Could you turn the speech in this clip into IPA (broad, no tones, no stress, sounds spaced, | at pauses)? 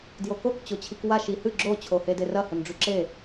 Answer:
d j o k o k t͡ɕ o t͡ɕʰ i k w a ʃ i h ɨ ɡ͡ǁ o t͡ɕʰ o h e d e r ɐ h ɵ n ɖ͡ʐ ʉ ǁ e